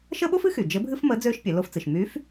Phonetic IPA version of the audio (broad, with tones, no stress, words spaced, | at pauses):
ʃə˥ɓo˥fɨ˧˥xy˩ d͡ʒɘ˧˥bʱɨ˥fmə˧˥ d͡zøː˥ʃpʲɛ˩˧ lo˧ft͡sɨ˩ʃmyː˧˥f